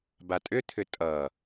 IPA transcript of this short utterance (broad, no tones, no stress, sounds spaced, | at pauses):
b a tʼ ʏ t̪ʰ ʏ tʼ ʌ